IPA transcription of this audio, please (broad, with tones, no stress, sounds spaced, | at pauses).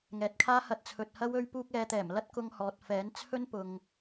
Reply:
ŋ ɛː˨ t̚ kʰ aː˥ h ɐ˧ t̚ t͡sʰ ɵ˨ t̚ h ɐ˥ w ɵ˧ ɥ p uː˧ k̚ ɛː˨˧ t̪ ɛː˨˩ m l ɐ˥ t̚ k ʊ˧ ŋ h ɔː˨ t̚ f ɛː˨˥ n t͡sʰ ɵ˥ n p ʊ˨ ŋ